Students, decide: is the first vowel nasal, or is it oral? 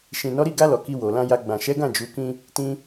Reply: nasal